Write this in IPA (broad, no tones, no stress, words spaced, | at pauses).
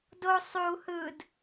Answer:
do sˤu hɯd